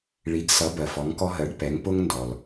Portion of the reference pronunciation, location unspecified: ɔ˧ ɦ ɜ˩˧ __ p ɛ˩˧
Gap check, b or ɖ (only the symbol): ɖ